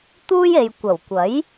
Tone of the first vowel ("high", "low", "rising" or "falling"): high